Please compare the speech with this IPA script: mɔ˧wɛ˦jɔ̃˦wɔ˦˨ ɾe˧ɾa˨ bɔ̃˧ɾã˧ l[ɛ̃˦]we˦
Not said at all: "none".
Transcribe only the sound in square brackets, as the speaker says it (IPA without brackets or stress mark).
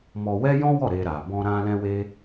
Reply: ɛ̃˦